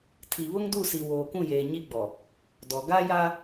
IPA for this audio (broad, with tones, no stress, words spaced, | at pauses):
tʰi˨βʊ˦ŋdu˦˨si˨ woː˨kũ˦˨jeː˨ ɲi˦ɡ͡bɔ˨ | dɔ˨ ɡa˦ja˦